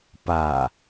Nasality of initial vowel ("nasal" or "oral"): oral